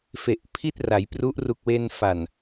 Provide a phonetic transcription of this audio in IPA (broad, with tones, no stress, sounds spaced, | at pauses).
f e˨˩ ʔ pʰ i˥˩ t̚ r a˩˦ j p r u˦˥ ʔ r u˨˩ k̚ w e˧ n f a˨˩ n